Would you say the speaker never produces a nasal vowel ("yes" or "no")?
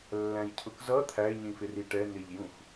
no